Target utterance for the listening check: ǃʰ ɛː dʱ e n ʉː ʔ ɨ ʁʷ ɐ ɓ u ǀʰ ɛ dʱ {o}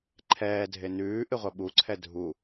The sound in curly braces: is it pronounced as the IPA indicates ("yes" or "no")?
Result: no